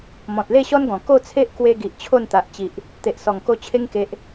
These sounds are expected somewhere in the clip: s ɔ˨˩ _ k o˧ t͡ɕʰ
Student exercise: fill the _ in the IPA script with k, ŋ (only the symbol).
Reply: ŋ